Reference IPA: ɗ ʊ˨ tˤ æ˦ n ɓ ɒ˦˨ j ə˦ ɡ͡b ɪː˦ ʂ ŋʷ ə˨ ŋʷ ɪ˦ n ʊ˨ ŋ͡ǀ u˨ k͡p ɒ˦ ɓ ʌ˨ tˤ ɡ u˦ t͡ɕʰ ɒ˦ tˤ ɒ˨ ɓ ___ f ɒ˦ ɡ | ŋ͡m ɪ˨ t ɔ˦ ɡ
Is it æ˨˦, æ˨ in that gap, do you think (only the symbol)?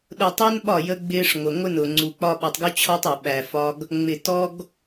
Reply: æ˨